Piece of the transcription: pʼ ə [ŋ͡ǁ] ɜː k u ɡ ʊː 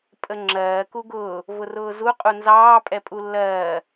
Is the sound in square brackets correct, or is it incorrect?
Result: correct